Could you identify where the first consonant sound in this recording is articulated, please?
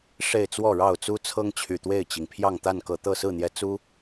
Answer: retroflex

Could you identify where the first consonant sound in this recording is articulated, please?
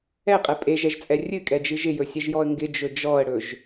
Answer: uvular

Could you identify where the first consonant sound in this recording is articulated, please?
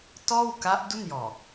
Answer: alveolar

